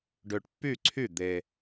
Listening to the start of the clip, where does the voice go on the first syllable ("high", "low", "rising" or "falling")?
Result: low